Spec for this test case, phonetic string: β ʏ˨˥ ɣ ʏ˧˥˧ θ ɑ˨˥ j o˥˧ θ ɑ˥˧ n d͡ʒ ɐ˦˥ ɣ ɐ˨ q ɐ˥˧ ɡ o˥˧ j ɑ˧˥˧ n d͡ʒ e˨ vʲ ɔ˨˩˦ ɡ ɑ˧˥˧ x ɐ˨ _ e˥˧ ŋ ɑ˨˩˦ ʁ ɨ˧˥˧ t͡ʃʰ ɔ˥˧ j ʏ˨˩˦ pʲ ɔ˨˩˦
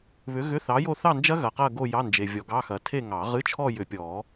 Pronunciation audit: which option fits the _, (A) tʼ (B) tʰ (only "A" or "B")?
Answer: B